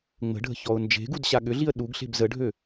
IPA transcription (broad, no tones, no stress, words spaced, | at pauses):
ŋ͡mə̤ɖʱə̤ çɔʊ̯nd͡ʒe̤ɡud ɕaɠʏɮiə̯ ɗuɡɬe̤b zəɖʱø